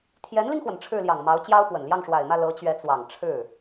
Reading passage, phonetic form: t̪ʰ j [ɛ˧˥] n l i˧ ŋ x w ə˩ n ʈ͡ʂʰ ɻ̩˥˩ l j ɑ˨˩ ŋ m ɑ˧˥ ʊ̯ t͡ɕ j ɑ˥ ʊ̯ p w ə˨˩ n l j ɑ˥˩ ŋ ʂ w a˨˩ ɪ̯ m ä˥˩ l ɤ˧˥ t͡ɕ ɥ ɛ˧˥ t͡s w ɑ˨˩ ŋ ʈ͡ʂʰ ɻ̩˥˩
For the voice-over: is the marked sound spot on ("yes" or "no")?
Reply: yes